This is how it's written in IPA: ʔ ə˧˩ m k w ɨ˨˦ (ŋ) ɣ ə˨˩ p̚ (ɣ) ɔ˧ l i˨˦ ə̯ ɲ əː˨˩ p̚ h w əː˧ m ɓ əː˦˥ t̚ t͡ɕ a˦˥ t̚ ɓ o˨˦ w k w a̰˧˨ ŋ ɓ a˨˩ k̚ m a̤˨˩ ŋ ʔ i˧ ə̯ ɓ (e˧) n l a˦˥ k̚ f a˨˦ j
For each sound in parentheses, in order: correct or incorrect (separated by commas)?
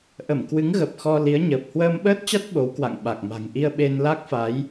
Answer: correct, incorrect, correct